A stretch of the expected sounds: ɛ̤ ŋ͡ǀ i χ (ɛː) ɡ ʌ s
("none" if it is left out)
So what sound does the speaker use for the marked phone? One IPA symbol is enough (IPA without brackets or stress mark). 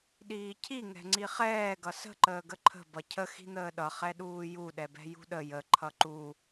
ɛː